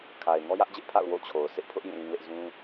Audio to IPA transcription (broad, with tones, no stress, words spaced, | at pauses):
kʰa˨ɪ̯ ŋɔ˦jä˦ʔd͡ʑɪ˦ʔpʰa̰˦˨ʊ̯ wo̰˦˨t͡ɕʰo˨ʊ̯ sɪ˦ʔpʰʊ˦ʔ jĩ˦˨lĩ˦lɪ˦ʔ zũ˦